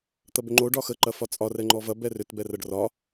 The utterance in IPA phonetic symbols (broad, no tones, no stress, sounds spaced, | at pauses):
t̪ ɐ b ʏ ŋ͡ǃ o ɖ ɒ x ə ǃ ɐ f ɒ t͡sʼ ɒ r ɛ ŋ͡ǃ ɔ v ɐ b ɛ r ʏ t b ɛ r ɐ ɖ r ɒ